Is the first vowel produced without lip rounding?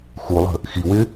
no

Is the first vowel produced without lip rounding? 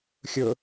no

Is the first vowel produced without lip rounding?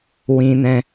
yes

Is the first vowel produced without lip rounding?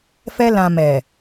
yes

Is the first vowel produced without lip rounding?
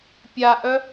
yes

